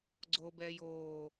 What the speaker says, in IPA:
ɡ͡ǀ o b ɛː j oː

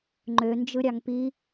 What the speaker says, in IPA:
ŋ͡ǃ ø n d͡ʒ ɯ ɾʲ ɑ ŋ p i

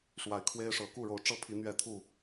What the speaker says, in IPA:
ʂ w a˨˦ ɪ̯ kʰ w e˦ ɪ̯ ʂ ɤ˨˦ k u˥˨ ɻ o˨˦ ʊ̯ ʈ͡ʂ ɤ˥˨ pʰ i˨˦ n̪ ɥ ɛ˥˨ t̪ʰ u˥˨

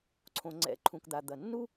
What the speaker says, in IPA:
ǀʰ õ˩ ŋ͡ǀ ɛ̰˩˥ ǃʰ ũ˩ k d̪ a˩ d̪ ɐ˩ nː u˥

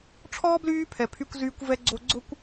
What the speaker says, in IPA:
ʈ͡ʂʰ ɔː˥ b l yː˦ pʰ ɛ˨ pʰ y˦ kʷ z yː˦ kʷ v ɛ˥ ɡ͡ǀ o˦ ɡ͡ǀ ʊ˥ kʷ

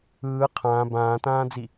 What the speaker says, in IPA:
ɯː qʰ ãː b ãː t ãː d͡z i

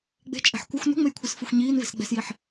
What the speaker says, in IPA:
ɡ͡b e̤ t͡ʃʼ ɛ̤ ħ kʷ ʌ xʷ n ṳ ŋ͡m e j kʷʰ ɯ s f ɯ xʷ ɲ iː n v e̤ s ɡ͡b ɛ̤ s j i ħ

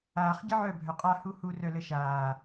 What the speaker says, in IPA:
aː χ ɟ ə ʕ œ bʱ œ qʼ a h u h u r œ l ə ʃ aː

